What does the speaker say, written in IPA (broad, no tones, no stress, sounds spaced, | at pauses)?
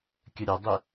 kʲ ə ɾʲ æ dˤ e